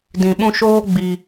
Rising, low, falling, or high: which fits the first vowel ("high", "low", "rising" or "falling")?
low